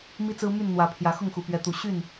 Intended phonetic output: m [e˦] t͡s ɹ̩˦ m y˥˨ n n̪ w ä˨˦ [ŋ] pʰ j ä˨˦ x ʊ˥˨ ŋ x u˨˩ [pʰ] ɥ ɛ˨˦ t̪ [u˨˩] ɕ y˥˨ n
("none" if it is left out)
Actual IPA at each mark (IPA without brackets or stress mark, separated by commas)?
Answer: i˦, none, p, u˨˩